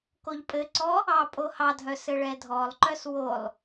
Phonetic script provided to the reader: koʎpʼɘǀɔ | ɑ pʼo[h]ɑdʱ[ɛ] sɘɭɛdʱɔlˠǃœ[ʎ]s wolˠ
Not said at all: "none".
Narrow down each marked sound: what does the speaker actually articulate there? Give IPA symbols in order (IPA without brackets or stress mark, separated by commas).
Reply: h, œ, none